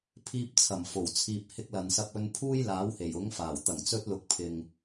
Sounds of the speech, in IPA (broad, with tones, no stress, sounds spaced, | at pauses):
pʰ iː˧ p̚ t͡sʰ ɐ˨˩ m f o˨˩ w t͡sʰ iː˨ p̚ h ɪ˧ k̚ l ɐ˨ n s ɐ˧ p̚ ɵ˧ n pʰ uː˥ j l aː˨˥ w h e˨˩ j ʊ˨˥ ŋ f aː˨˩ w t̪ ɐ˨˩ ŋ t͡s ɵ˧ t̚ l ʊ˨ k̚ pʰ ɪ˨ ŋ